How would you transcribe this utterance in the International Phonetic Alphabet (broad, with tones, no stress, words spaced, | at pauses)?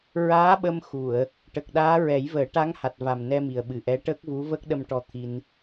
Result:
ɹaː˧˥ɓə˧m xu˨˩˨ə̯ | ʈə˨˩k̚ɗaː˧˥ ɹɛ˨˩˦jvəː˨˩˦ʈa˧˥ŋ ha˨˩t̚ va˨˩m nɛ˧mi˨˩ə̯ɓɨ˨˩ʔɛ˧˥ ʈəː˦˥k̚vu˧˥ və˦˥k̚ɗə˧mʈɔ˧ t̪ʰi˧n